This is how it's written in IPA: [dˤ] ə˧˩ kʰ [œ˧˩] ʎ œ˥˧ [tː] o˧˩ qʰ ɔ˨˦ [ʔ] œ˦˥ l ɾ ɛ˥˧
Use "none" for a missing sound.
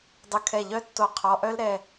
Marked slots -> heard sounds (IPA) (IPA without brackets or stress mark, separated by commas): dˤ, ɛ˧˩, tː, ʔ